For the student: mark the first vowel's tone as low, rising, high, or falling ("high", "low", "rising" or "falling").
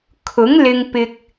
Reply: rising